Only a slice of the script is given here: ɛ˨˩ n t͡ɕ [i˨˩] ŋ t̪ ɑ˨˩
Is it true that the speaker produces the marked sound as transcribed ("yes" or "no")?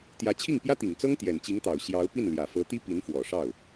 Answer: no